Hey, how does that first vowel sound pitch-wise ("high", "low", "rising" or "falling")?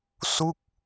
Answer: falling